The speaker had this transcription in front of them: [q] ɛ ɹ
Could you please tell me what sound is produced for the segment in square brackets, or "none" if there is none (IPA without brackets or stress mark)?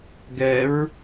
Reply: ɡ